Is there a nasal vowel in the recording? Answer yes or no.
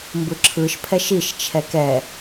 no